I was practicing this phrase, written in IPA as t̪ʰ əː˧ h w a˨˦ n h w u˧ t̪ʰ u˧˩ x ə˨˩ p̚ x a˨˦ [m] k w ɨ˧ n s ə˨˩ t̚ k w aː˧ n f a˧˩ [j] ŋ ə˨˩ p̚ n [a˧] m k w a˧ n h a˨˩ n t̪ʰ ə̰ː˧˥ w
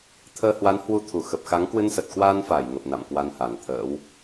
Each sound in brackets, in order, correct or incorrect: incorrect, correct, incorrect

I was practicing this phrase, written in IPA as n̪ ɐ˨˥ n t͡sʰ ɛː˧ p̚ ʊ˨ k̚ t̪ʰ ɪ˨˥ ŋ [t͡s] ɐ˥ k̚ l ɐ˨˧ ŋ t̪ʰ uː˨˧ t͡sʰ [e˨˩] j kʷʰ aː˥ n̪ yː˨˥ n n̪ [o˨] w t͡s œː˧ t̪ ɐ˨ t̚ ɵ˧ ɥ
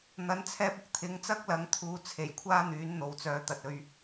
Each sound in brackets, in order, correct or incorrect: correct, correct, correct

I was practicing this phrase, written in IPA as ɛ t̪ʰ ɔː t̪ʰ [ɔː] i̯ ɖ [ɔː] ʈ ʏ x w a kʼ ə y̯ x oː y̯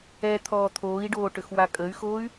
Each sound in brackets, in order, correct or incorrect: incorrect, incorrect

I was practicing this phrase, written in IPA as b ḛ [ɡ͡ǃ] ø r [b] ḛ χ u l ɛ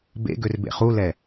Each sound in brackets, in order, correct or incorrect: incorrect, correct

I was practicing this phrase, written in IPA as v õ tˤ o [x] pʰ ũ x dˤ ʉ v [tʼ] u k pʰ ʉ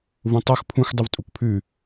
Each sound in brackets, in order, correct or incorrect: correct, correct

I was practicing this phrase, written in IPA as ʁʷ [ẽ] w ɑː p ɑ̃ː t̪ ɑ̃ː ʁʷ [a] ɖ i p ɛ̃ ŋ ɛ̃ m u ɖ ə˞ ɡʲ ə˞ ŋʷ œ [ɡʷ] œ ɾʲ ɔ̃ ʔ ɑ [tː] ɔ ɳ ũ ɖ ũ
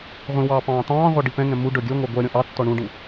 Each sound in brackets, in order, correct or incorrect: incorrect, incorrect, correct, correct

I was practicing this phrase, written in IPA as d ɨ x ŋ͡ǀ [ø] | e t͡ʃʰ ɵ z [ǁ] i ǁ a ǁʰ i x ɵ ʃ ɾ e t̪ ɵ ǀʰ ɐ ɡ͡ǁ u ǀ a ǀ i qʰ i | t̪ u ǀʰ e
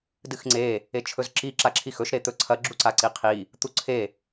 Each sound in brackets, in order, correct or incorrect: incorrect, correct

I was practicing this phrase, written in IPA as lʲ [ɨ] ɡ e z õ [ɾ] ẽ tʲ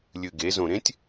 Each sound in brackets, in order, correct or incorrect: correct, correct

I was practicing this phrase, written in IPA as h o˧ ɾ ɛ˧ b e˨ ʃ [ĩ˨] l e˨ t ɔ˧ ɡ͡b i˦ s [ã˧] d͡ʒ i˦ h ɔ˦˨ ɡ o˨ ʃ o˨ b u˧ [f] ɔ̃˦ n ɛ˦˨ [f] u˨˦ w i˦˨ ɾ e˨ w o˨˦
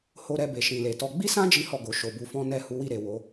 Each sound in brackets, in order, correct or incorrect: correct, incorrect, correct, incorrect

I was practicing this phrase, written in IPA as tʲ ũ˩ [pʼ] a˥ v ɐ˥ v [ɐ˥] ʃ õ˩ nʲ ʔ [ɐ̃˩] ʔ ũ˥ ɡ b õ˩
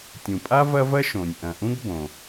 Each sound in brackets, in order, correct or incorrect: correct, correct, correct

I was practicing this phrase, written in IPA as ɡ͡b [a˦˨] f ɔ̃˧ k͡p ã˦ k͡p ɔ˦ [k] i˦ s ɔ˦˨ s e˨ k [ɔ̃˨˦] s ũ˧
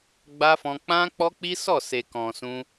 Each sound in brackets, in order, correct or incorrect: incorrect, incorrect, incorrect

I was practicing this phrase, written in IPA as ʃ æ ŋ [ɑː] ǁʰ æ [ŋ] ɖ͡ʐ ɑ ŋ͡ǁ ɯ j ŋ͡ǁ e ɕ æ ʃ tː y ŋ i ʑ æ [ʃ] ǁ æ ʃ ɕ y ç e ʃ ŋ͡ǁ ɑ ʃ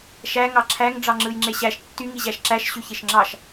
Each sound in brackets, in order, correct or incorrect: incorrect, correct, correct

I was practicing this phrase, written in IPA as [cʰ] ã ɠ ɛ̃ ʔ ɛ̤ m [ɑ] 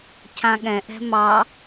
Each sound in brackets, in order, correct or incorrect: correct, correct

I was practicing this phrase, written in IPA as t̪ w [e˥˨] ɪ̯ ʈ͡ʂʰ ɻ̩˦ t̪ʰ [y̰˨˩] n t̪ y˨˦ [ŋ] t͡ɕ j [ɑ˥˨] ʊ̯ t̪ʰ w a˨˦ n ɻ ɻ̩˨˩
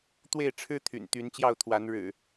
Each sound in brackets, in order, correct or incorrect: correct, correct, incorrect, correct

